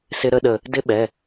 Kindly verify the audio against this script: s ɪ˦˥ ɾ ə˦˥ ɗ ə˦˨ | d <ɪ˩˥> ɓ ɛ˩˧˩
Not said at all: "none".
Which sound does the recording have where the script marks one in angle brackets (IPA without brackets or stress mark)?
ɪ˦˥